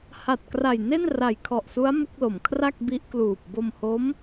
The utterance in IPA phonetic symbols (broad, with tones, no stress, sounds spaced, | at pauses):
h a˨˩ t̚ k r a˨˩ j n e˥˩ n r a˨˩ j kʰ ɔ˨˩ ʔ s u˦˥ a̯ m u˦˥ k̚ l o˩˦ m kʰ r a˥˩ k̚ b i˦˥ ʔ k l uː˨˩ p̚ b o˧ m h o˦˥ m